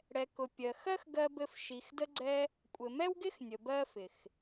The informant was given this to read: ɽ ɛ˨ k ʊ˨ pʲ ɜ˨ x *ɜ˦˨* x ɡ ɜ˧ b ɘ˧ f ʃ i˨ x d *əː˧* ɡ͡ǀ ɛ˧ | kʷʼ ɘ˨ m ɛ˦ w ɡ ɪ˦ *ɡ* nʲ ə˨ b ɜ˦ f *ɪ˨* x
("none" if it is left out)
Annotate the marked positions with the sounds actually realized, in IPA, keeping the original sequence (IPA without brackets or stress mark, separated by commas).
ɜ˦, ə˧, x, ɪ˨